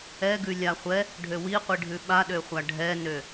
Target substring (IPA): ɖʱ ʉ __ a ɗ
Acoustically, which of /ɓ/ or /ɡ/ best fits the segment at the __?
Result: ɓ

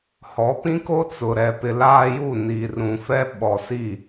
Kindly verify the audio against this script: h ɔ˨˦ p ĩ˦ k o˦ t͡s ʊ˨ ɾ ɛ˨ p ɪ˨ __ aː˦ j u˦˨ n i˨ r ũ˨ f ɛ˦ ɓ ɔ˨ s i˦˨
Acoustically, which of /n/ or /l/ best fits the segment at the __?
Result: l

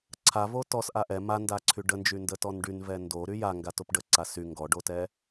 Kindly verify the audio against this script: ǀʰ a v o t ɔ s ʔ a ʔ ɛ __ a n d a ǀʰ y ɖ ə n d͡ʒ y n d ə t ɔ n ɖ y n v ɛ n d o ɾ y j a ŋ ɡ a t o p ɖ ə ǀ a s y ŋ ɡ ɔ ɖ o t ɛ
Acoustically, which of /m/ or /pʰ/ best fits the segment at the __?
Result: m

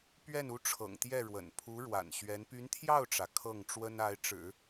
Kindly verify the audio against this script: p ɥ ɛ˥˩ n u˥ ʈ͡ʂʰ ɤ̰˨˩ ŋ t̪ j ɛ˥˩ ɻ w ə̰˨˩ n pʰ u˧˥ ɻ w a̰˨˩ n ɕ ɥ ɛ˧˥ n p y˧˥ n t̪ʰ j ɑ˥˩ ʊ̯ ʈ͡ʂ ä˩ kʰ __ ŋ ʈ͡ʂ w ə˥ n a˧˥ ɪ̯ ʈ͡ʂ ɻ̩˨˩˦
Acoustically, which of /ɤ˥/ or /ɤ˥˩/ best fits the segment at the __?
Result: ɤ˥˩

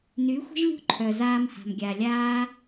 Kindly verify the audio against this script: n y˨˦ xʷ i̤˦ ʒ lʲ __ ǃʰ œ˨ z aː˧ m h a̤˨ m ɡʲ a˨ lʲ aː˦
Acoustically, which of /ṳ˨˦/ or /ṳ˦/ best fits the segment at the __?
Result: ṳ˦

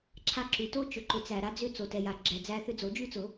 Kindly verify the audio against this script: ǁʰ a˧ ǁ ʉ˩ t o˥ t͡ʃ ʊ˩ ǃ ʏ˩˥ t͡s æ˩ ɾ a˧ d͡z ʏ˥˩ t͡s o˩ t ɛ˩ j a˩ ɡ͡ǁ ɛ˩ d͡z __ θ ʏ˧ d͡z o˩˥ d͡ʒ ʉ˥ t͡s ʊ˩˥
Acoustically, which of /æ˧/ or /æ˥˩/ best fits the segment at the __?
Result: æ˧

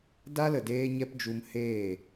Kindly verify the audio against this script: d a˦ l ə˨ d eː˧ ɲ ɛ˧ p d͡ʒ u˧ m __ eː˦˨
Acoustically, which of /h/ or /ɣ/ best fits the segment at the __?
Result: h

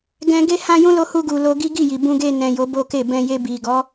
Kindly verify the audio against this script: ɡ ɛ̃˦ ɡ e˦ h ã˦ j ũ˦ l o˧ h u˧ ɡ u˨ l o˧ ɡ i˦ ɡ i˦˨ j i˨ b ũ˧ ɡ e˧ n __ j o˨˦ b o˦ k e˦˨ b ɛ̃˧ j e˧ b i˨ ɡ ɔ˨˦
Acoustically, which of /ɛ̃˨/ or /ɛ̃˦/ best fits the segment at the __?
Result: ɛ̃˨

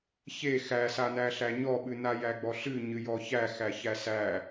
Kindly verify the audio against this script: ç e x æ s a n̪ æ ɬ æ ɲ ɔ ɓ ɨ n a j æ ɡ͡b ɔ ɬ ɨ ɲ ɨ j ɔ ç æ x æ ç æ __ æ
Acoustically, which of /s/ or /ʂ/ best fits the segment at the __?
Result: s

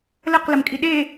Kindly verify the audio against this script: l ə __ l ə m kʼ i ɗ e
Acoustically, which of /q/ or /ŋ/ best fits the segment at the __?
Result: q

